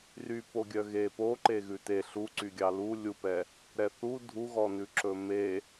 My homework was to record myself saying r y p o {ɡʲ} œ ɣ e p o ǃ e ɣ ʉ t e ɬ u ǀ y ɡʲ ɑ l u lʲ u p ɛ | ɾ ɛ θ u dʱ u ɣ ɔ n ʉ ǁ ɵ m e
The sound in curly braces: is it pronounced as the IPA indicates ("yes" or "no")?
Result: yes